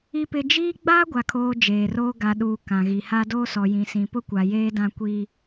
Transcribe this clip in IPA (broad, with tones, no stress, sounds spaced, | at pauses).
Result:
i˨ p ɪ˨ d͡ʒ iː˦ ɡ͡b aː˦ ɡʷ a˨ kʰ oː˨ d͡ʒ eː˨ r oː˦ ɡ a˨ ɗ uː˦ k ã˨ ɣ i˨ h a˦ d oː˦ s ɔ˨ j ĩ˨ s ĩ˨ p ʊ˦ kʷ a˨ j eː˦ d ã˦ kʷ iː˦